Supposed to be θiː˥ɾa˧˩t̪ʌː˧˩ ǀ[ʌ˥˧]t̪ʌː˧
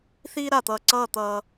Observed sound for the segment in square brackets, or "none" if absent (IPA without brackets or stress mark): ʌː˥˧